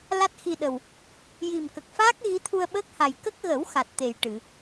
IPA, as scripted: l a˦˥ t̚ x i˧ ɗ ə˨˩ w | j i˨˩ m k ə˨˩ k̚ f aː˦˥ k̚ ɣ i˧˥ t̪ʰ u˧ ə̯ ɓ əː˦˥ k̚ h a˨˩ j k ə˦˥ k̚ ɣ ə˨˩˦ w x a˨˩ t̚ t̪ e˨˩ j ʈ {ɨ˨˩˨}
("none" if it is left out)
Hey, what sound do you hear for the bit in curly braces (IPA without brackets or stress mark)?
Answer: ɨ˨˩˨